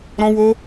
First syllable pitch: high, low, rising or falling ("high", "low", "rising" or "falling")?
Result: high